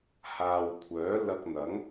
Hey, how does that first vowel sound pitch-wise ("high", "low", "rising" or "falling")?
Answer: low